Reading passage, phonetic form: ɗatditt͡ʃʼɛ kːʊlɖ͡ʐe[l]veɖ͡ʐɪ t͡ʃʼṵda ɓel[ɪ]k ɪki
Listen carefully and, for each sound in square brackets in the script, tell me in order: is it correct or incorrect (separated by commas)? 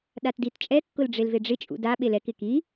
correct, incorrect